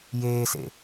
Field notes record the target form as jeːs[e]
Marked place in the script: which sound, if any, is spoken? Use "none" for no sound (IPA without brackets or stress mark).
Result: ḛ